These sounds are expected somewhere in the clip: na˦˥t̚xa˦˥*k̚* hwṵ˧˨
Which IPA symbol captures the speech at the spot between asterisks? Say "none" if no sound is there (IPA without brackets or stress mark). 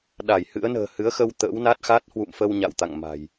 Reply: t̚